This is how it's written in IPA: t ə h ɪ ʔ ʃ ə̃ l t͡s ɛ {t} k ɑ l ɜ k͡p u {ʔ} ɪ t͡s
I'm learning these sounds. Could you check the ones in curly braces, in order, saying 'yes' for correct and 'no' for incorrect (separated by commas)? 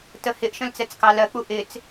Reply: no, yes